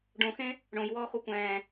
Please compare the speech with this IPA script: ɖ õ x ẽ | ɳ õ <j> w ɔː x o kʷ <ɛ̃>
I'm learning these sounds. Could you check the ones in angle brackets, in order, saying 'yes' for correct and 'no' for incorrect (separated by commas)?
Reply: yes, no